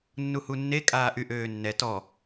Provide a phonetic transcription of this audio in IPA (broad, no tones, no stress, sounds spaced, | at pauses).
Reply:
nː u h u nː e kʼ aː ʔ y ʔ øː nː ɛ t ɔ